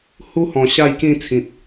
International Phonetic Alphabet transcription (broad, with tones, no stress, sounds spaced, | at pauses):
h u˦ h ɔ̃˨˩ ɕ a˥˧ j k ĩ˥˧ t͡sʰ ĩ˨ t̚